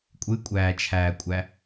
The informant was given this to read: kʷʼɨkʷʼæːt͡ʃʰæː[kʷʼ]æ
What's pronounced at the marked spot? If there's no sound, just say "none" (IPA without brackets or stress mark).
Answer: kʷʼ